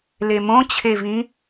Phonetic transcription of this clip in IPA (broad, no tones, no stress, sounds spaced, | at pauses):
l e m õ t͡ɕʰ e v ĩ